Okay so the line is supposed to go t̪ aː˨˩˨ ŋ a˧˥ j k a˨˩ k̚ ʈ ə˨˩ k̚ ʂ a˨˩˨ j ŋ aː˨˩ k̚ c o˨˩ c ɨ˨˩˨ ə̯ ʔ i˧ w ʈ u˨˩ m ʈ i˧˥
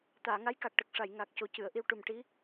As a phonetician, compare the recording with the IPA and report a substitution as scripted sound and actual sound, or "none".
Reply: none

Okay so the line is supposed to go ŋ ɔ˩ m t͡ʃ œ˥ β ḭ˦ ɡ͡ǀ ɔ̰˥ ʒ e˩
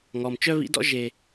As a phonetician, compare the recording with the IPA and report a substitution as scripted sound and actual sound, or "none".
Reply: ɡ͡ǀ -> d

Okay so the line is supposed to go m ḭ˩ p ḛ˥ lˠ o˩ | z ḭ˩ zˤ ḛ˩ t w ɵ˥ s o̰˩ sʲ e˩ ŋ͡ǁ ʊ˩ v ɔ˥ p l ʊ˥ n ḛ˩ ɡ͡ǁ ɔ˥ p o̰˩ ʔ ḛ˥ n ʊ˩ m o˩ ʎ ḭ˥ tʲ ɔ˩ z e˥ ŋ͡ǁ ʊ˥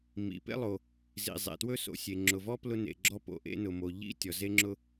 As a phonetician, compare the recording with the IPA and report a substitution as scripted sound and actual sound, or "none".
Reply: none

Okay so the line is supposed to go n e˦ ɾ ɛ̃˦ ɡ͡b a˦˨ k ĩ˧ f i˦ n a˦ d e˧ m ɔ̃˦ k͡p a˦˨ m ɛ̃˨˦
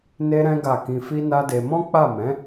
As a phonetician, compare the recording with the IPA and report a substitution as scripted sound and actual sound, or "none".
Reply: ɡ͡b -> ɡ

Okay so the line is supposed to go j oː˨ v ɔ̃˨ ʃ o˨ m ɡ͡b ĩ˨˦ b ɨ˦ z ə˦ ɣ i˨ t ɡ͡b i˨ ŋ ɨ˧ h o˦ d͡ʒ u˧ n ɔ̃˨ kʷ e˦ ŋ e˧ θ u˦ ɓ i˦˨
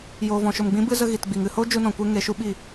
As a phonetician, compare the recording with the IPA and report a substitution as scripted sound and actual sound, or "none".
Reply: θ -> ʃ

